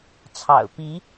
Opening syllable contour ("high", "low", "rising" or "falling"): low